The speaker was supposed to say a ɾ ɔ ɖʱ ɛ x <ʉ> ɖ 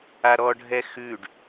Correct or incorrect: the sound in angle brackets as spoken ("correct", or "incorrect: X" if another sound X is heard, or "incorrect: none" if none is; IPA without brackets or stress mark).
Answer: correct